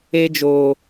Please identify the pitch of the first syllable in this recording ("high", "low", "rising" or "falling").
high